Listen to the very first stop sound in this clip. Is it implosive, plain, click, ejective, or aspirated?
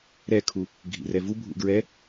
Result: aspirated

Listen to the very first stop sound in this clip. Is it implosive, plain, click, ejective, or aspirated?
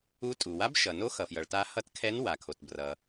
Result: ejective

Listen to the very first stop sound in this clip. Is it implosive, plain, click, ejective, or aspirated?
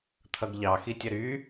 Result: aspirated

